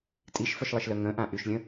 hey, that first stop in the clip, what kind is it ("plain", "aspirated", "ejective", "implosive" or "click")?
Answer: ejective